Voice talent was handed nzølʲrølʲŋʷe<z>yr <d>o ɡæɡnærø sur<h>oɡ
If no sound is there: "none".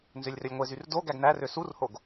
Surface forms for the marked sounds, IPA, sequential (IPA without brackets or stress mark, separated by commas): z, d, h